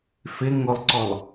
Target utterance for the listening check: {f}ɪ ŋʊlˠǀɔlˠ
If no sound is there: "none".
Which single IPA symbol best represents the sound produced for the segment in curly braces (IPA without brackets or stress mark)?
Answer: f